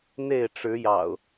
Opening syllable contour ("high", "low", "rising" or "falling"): falling